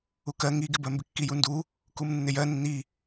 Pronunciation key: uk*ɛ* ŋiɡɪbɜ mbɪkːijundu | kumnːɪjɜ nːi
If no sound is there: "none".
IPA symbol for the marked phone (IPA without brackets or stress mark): ɜ